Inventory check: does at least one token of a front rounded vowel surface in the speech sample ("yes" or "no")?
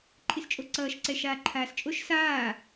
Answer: no